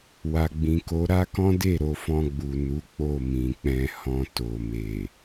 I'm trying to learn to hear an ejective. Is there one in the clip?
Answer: no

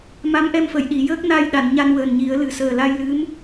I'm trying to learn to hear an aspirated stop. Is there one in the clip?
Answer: no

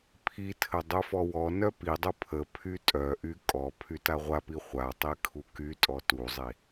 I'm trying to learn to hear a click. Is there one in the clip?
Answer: no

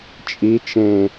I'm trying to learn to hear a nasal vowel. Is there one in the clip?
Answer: yes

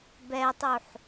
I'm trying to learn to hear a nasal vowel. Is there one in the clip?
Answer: no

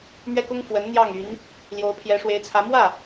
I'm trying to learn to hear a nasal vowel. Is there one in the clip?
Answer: no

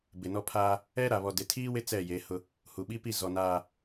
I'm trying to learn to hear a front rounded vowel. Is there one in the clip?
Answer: no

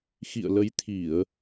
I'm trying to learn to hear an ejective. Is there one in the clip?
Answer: no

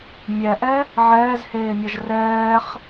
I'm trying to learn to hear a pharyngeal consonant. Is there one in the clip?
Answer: yes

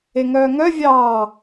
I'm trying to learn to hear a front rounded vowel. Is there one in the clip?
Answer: yes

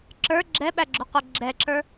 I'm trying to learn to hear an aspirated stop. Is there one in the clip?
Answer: no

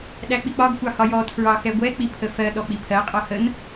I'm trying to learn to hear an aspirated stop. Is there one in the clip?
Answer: yes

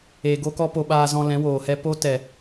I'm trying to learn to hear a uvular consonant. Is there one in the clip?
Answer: no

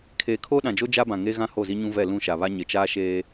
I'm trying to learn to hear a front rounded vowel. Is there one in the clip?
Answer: no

